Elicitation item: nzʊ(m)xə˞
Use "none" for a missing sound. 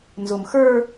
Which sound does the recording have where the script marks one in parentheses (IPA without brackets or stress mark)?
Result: m